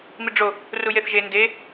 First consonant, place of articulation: labial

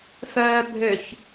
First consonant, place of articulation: labial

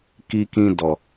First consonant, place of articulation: velar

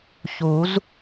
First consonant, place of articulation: palatal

